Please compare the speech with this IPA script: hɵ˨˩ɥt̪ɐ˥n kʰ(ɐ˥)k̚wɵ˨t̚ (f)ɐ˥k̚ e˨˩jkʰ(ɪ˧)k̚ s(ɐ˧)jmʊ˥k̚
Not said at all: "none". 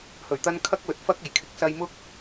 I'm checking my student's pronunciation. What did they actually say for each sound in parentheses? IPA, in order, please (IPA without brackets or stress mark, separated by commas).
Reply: ɐ˥, f, ɪ˨˥, ɐ˧